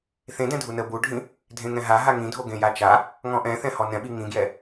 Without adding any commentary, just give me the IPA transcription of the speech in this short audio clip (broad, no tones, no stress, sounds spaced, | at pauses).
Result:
θ ẽ d ɛ̃ dʱ u n ə b u ɖʱ ĩ | dʱ ẽ ŋ ɛ̃ ɦ a ɦ a ŋ ĩ dʱ o ɡ ẽ j a t͡ʃ a | ŋ ɔ̃ ʔ ɛ̃ θ ɛ̃ h ɔ n ɛ̃ ɓ i ŋ ĩ ɡ j ɛ